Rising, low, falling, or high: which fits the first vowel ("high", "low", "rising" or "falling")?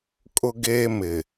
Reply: high